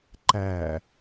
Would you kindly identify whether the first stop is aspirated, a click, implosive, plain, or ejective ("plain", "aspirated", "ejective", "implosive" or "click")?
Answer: click